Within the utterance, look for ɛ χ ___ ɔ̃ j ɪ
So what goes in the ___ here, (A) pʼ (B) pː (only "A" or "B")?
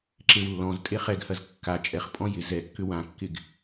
A